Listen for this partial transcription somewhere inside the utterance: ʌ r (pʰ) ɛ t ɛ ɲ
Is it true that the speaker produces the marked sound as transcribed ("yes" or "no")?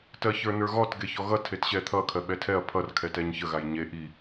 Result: no